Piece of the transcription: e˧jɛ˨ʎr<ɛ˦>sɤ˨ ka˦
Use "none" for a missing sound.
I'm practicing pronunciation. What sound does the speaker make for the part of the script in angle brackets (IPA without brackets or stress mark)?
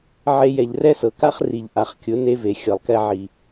ɛ˦